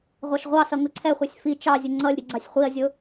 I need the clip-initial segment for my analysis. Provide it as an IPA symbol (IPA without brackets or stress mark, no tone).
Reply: ʁʷ